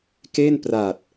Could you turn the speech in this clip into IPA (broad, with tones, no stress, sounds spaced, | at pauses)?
k e˥˩ n p r a˨˩ t̚